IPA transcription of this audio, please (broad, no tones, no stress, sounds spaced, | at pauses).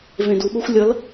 v ẽ d u ɓ o xʷ lʲ ʌ l